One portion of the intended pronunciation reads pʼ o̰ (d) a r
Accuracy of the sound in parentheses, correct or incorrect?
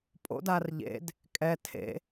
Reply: correct